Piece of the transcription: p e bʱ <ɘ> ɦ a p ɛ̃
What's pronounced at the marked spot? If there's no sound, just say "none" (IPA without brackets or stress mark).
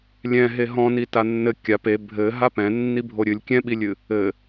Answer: ɘ